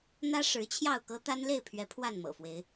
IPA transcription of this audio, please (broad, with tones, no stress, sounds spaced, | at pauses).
n̪ ä˦ ʂ ɻ̩˨˦ t͡ɕʰ j ɑ˥˨ ʊ̯ k ɤ˦ t̪ a˦ n l e˥˨ ɪ̯ pʰ ɥ ɛ˨˦ pʰ w a˥˨ n m ɤ̰˨˩ f w e˨˦ ɪ̯